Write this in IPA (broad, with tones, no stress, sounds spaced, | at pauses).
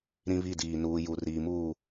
ɾ ĩ˦ β i˦˨ d iː˨ n uː˨ j u˨ r iː˨ m uː˦˨